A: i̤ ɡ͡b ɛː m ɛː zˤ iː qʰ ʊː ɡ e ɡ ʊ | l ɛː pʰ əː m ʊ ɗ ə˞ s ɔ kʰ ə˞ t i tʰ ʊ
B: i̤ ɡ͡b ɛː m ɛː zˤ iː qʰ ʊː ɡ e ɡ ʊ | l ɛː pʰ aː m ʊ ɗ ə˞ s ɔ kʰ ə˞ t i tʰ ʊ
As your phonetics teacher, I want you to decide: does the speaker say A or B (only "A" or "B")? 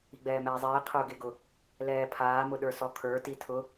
B